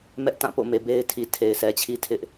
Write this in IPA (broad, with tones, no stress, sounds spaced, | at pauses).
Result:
m ɛ˦ ʔ t ã˦˨ p o̰˦˨ m e˨ b e˦ ɪ̯ tʰ i˨ tʰ e˨ ɪ̯ sʰ ɛ˨ t͡ɕʰ i˦ tʰ ɪ˦ ʔ